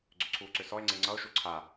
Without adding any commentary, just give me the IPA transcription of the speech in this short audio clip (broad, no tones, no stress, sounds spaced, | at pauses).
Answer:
ɡ͡ǀ ʏ ǀʰ uː ǀ ʏ s ɔ e̯ ŋ͡ǀ e ŋ͡ǀ ʌ o̯ ʃ u ǀʰ a